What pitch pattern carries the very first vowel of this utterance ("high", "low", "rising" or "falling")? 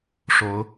rising